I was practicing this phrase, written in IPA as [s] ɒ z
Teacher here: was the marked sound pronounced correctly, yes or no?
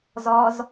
no